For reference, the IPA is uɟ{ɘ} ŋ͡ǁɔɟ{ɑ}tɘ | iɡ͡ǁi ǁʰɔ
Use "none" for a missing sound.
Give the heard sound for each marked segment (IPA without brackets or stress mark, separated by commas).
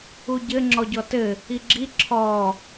ɘ, ɔ